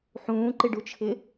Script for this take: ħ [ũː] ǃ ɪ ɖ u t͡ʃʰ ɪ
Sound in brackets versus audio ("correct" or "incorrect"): correct